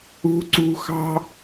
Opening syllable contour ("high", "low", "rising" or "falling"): high